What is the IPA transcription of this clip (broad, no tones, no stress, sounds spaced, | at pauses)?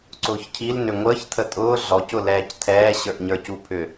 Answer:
ǀ ʊː ç cʰ i l n ʏ ŋʷ əː ç tʰ ə tʼ ʊː ɮ ɔ c ʊ l ɛː c tʰ ɛː ɕ ə˞ ʔ ɲ ə˞ c u pʰ ʏ